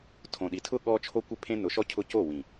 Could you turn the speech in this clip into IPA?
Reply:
tʰ õ˨ ɗ i˨ tʰ ʊ˦ ɠ ɔ˦ t͡ʃʰ o˦ kʷ ɪ˦ pʰ ẽ˦ n ʊ˨˦ ʃ ɔ˦ cʰ ʊ˦ c o˦˨ w ĩ˨

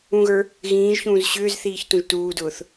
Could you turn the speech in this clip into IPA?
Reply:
ũ ɣ ə˞ | ɣ ĩː ʒ ç ũː z ɕ ʏː z θ iː ç t ũ ʒ t uː d ʊː θ

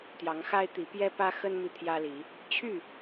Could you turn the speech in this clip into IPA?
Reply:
t̪ j ɑ˨˦ ŋ x a˦ ɪ̯ t̪ i˨˦ p j ɛ˦ p ä˦ x ə˦ n m i˨ t̪ʰ j ä˦ l i˨˦ | t͡ɕʰ y˥˨

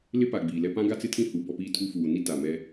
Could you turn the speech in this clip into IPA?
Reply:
l ɪ˦ p a˨ ɡ͡b iː˨ l ɛ˦ p ã˦ ɡ a˦ t͡s ɪ˦ tʰ ĩ˦ h u˨˦ b ɔ˦ p iː˦ tʰ u˦ f uː˨ n i˦ t a˨ m ɛ˦

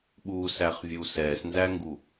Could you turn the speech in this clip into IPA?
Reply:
ɓ u s æ χ vʲ u s ɛ s n z æ ŋ ɡ u

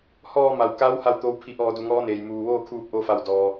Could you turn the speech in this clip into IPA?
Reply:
h ɔː˧ m a˩ w k a˧˥ w h a˥˨ w t̪ oː˧˥ w pʰ i˧˩ ʔ ɔː˧˩ d u˩ ŋ ɔː˧˥ n eː˩ j m uː˩ ʋ oː˥˨ kʰ uː˧ p̚ ʔ o˧ f a˧˩ w d ɔː˩

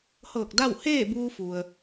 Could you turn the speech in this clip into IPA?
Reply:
h ɤː˧˩ k̚ d a˥˨ w h eː˥˨ b uː˧ f u˩ ə̯

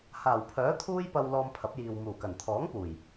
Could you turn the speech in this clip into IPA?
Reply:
h aː˨˩ w pʰ œː˨˥ t̪ʰ uː˥ j p ɐ˧ w l ɔː˧ m pʰ ɐ˨˥ p̚ j iː˨ w m uː˨˩ k ɐ˨˩ n t̪ʰ ɔː˨˥ ŋ p uː˨˩ j

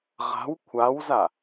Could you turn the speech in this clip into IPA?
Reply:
ʁ a̤ w kʷʰ a w z a

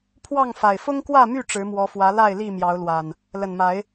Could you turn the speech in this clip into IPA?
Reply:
pʰ w ɑ˥˨ ŋ f a˨˩ ɪ̯ f ʊ˦ ŋ k w ä˥˨ m y˥˨ ʈ͡ʂ ɻ̩˨˦ m w ɔ˨˦ f w ä˨˦ l a˥˨ ɪ̯ l i˥˨ m j ɑ˨˦ ʊ̯ l w a˨˩ n | l ə˨˩ n m a˨˦ ɪ̯

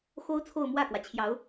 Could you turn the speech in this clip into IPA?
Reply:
x o˥ ʊ̯ t͡sʰ o˥˧ ʊ̯ m w ä˥˩ k w ä˩ t͡ɕʰ j ɑ˧˥ ʊ̯

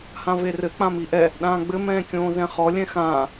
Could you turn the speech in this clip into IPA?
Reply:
h ã v e r ɘ k͡p ã m i ʔ ɛ | ɗ ãː ɡ͡b ɘ m ɛ̃ː kʲ õː z ɛ̃ χ ɔ lʲ ɛ̃ x ãː

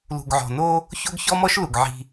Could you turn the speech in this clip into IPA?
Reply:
l ṳ˨ ɡ ʕ ɔ̤˨ n o˦ | ç o˦ ɡ ç ɔ˦ m ɔ˦ ʃ l u˨ ɡ ʕ i̤˦

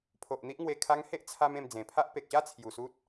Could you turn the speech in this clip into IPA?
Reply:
pʰ o˨ ʔ n̪ i˦ ʔ ŋ w e˧ kʰ a˧ ŋ h e˦ ʔ t͡sʰ a˧ m ẽ˧ m d͡z ẽ˨˩ pʰ a˦ ʔ p e˨ k̚ ɕ a˦ t͡sʰ j u˨˩ s u˦ t̚

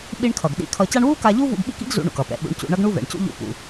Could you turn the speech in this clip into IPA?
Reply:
ɓ i˧ ɳ kʰ ʌ˩ ɡ ɗ ḭ˧ kʰ ʌ˧ c a˥ ɳ w u˥ k a˧ ʎ u˥ v ṵ˧ ɡ ɓ ḭ˥ k ḭ˥ ɡ z ṵ˧ ɳ ṵ˩ k ʌ˩ p ɛ̰˩ ɓ ṵ˧ ɳ c ṵ˧ ɳ ʌ˥ ɡ ɳ u˥ v ɛ̰˩ ɳ c ṵ˥ ʎ ṵ˧ p ṵ˩

